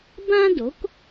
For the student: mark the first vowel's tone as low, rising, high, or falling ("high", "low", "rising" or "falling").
high